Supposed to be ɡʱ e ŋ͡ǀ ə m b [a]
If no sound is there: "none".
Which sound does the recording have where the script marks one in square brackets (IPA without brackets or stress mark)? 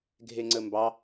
ɑ